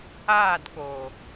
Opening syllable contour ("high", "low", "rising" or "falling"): falling